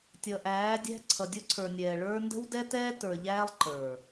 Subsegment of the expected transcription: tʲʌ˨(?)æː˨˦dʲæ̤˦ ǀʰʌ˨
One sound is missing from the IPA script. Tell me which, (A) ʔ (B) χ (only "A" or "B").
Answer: A